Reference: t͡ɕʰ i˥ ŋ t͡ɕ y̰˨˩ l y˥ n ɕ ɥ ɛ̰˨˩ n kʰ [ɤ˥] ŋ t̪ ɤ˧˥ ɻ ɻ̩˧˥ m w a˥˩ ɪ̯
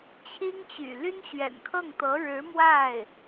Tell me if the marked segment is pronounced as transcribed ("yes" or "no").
no